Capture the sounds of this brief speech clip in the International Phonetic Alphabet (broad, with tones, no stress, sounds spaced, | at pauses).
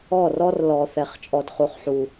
ɔ˦˨ r ɔ˦ r l ɔ˨ θ ɛ˨ χ t͡ʃʼ ɔ˧ d χ u˧ χ ħ u˧